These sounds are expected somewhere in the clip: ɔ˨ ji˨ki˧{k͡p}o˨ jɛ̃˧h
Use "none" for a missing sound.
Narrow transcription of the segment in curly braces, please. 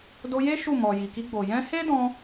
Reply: ɡ͡b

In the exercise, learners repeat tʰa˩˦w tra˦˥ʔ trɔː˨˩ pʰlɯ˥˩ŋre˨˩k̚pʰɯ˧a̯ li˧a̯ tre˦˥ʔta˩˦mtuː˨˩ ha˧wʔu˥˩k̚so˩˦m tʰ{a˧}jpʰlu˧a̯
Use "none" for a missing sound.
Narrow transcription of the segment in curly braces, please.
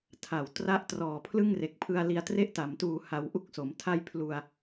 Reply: a˥˩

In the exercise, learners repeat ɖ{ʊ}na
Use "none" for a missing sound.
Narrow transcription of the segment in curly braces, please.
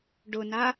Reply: ʊ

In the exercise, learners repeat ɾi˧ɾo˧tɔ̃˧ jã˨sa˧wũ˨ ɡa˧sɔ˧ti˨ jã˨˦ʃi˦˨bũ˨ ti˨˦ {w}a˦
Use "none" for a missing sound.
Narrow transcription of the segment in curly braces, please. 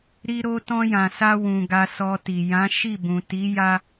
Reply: j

